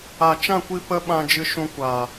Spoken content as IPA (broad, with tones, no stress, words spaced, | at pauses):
a˨t͡ʃã˦˨kʷi˧ pə˦ɓã˧ d͡ʒɨ˧ʃũ˧kʷaː˨